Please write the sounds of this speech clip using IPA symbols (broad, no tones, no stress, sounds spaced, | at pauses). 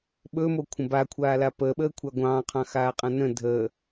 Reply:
ɓ ɵ m o kʷʰ ə̃ b a kʷʰ aː l a p əː ɓ əː kʷʰ a ɡʷ ɑ̃ː qʰ ɑ̃ x aː qʼ ã n ə̃ dʱ əː